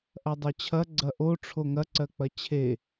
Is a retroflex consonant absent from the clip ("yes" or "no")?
no